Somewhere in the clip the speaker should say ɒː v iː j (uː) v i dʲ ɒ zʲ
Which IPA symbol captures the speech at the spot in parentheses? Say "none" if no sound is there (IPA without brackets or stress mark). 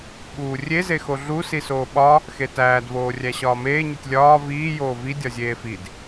oː